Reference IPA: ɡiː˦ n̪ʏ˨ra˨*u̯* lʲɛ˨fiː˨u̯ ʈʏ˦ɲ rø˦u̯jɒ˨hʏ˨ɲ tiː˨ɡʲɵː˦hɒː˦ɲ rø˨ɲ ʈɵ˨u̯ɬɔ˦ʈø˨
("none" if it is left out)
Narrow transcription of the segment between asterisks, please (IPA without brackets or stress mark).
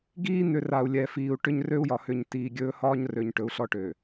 u̯